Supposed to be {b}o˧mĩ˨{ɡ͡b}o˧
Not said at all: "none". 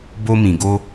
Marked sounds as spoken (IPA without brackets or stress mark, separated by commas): b, ɡ